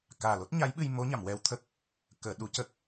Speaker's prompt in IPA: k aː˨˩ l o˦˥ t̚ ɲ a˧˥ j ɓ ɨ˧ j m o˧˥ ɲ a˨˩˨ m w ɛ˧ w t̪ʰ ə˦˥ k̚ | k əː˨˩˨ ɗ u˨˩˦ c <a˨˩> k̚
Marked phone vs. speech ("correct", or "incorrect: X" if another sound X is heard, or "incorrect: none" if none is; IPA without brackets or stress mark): incorrect: ə˨˩